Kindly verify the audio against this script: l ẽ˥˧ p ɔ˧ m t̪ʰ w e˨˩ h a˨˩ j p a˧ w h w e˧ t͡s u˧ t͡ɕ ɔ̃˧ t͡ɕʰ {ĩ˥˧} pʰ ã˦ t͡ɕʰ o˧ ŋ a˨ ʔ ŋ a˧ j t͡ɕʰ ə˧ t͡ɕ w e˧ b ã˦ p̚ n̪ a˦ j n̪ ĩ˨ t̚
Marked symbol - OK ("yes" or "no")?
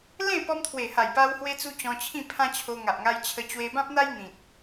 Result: yes